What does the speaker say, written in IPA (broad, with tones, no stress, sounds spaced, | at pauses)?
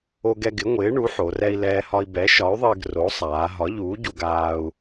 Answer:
o˧ ɡ ɛ˧ ɡ ɪ˩˥ ŋʷ ɪː˩˥ ɳ u˩˥ ħ o˩˧ r ɛ˧ i̯ l ɛː˧ h ɒ˧ i̯ b ɛ˩˥ ʃ ɒ˩˥ y̯ ðˤ ɪː˧ ɡ r o˩˥ sˤ aː˩˧ ɦ ɒ˩˥ ʎ uː˩˥ ɟ u˧ ɡ aː˧ u̯